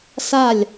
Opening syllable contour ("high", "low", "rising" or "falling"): falling